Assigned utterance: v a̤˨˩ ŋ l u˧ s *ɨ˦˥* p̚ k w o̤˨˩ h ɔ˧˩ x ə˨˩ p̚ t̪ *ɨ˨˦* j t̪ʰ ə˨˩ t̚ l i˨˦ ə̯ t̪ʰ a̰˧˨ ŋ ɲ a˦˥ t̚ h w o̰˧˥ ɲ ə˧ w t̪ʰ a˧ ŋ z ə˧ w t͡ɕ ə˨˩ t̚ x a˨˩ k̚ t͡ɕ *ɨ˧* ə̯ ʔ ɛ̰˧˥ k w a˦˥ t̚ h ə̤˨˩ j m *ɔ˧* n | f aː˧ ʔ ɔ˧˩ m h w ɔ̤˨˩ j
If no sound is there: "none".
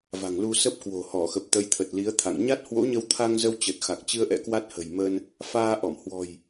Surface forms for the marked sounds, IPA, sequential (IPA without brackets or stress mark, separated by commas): ə˦˥, ə˨˦, ɨ˧, ə˧